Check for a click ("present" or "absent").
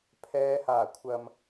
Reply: absent